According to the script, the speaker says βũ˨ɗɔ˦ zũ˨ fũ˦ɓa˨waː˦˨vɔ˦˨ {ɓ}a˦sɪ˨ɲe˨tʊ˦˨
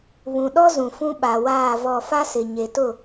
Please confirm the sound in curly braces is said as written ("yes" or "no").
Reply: no